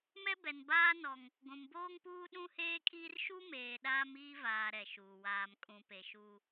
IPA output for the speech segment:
m ɛ˦ b ɛ˨ n b aː˦ n ɔ˦ ŋ | ɡʷ ũ˨ m b oː˦ ŋ p uː˦ ɗ ũ˦ h eː˦ kʼ iː˦ r ʃ u˦ m eː˨ ɗ aː˦ m iː˦ v aː˨ ɾ ɛ˨ ʃ uː˨ w aː˨ m kʼ ũ˨ p e˨ ʃ uː˦

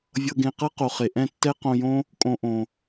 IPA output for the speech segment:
vʲ ɤ˧ ɡ ẽ˧ q ɤ˦ q o˨ χ e˨ ʔ ɛ̃˦˨ tː ɛ˦ q õ˧ j õ˦ | kʼ õ˧ ʔ õ˨

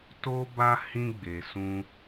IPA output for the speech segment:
t o˧ b a˧ h ĩ˧ ɡ͡b e˨ s ũ˧

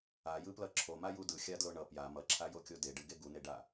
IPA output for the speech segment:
a j ɯ p l ʌ ǁʰ o m a j u d ɯ xʲ a d l o ɳ ʌ p j a m ʌ ǁʰ a j o kʲ o d e ɖ ɯ ɡ e ɡ u n e ɖ a

